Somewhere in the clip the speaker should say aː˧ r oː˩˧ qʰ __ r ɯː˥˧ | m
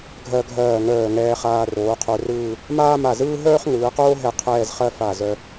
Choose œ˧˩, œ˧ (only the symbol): œ˧